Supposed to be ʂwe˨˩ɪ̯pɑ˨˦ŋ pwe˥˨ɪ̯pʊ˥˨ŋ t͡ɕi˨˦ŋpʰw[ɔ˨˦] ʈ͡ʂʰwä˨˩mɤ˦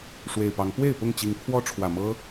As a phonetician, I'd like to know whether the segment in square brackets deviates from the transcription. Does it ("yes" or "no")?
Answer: yes